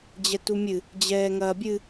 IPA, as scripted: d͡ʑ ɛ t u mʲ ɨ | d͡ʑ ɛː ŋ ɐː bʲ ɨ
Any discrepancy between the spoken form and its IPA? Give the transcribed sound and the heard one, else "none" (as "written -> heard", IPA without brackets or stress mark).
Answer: none